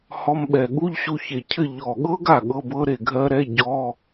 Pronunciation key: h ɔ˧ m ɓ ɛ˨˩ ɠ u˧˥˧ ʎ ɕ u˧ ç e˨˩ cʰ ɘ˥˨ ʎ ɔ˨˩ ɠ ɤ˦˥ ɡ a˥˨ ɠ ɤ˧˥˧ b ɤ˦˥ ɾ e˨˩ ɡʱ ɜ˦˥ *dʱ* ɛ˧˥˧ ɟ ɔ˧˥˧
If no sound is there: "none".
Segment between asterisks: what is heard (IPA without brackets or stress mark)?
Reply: ɾ